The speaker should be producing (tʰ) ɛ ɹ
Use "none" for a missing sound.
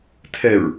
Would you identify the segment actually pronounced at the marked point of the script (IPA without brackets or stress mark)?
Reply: tʰ